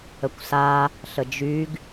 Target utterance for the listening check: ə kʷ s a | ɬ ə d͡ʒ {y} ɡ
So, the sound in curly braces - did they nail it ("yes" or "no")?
yes